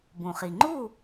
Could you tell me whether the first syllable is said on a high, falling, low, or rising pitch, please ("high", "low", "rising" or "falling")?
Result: low